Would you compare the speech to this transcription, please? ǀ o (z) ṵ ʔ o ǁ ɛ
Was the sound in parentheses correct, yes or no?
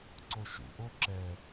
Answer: no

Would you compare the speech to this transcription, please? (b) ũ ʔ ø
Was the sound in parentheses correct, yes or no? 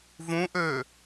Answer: no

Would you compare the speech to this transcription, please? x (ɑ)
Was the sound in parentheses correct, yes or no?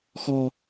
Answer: no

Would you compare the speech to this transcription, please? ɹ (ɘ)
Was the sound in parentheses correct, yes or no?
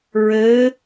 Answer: yes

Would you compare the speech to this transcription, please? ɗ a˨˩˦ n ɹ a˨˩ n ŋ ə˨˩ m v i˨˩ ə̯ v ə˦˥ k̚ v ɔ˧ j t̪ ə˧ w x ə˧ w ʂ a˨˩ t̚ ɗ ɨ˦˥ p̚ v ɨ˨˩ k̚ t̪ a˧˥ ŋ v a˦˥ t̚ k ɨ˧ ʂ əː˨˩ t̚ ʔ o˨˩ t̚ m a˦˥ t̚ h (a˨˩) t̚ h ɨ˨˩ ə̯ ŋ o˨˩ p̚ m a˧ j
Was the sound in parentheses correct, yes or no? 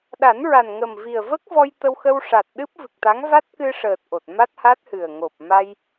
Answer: no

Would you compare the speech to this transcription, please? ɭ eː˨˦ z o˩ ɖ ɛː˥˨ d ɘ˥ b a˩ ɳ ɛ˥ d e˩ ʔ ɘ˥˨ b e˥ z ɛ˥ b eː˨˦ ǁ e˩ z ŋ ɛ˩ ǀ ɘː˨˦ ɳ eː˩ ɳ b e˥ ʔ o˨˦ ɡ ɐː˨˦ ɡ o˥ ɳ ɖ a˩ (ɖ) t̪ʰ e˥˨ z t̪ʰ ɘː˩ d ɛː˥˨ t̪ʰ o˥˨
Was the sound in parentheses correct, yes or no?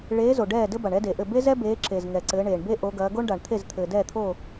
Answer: no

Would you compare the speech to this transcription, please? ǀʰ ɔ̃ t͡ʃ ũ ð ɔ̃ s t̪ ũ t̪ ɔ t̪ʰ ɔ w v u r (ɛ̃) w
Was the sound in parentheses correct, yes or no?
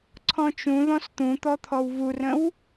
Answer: no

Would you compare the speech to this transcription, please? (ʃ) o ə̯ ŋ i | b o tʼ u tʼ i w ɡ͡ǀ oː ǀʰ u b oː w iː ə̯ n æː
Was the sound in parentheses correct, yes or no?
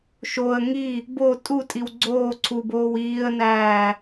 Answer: yes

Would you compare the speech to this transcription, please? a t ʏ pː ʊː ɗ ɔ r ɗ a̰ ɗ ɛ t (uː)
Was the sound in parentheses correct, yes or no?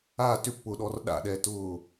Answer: no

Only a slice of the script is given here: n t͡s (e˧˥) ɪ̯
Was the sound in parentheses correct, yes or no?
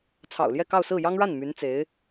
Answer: yes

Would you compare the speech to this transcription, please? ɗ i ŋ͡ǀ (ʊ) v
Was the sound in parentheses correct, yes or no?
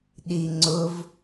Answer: yes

